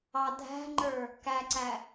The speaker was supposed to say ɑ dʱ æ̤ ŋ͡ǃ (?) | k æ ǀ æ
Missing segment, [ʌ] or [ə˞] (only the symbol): ə˞